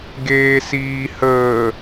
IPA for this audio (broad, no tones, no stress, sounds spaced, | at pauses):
ɡ eː s iː h əː